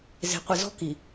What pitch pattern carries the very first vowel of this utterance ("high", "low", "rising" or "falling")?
low